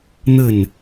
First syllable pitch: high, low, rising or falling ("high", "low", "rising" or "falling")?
falling